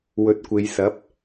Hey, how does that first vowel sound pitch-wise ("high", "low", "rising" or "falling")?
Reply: rising